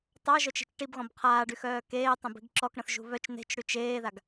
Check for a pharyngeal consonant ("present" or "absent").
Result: absent